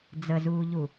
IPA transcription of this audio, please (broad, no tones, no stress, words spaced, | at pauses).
d͡zəzuːʎu